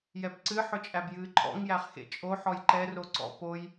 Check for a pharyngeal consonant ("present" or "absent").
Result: present